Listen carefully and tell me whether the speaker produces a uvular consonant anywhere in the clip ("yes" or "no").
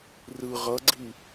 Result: yes